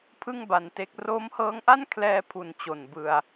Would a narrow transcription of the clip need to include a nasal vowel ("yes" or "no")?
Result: no